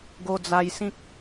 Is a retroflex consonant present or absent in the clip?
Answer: absent